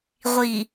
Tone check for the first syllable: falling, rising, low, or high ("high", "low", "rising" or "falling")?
low